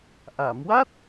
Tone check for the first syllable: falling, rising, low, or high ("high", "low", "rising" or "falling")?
low